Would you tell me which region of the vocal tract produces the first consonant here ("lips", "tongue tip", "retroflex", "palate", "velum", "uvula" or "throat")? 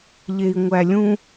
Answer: palate